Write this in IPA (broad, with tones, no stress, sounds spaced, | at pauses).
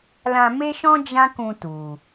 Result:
l ã˧ m e˦ ʃ ɔ̃˦ d͡ʒ ã˦ k ũ˧ t u˨